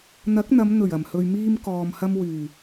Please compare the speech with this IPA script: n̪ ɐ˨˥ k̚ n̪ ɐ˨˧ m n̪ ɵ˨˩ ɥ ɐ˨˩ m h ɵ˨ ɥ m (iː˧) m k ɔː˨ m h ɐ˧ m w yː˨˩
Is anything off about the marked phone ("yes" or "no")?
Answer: no